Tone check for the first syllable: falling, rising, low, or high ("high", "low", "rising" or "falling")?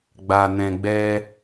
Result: low